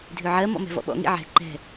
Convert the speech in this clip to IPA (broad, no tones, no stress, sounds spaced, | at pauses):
dʱ ø ʕ ɜ m ɔ̰ m ɛ̤ v ɔ̰ ɓ ɔ̰ ŋ ḭ ʕ ɛ̤ ǃ ɛ̤